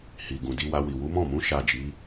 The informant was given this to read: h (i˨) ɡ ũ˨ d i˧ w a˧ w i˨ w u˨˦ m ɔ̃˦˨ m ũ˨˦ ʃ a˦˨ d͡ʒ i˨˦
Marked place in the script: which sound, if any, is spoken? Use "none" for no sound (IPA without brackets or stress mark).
i˨